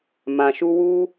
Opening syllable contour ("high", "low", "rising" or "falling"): low